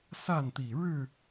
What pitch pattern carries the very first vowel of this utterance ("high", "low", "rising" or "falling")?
falling